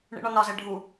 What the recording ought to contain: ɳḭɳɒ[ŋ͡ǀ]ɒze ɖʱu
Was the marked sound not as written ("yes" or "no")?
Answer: yes